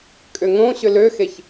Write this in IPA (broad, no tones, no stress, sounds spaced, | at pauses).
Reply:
kʼ ʏ ŋ õ ɕ ʏ l ø x e ç